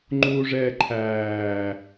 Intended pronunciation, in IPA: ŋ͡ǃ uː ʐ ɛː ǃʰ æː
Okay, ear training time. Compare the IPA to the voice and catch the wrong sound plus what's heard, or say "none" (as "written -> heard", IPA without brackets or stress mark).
none